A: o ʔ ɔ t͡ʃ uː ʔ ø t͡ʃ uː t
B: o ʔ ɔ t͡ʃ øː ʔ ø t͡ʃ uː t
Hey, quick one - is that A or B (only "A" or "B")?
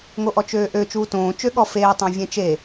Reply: B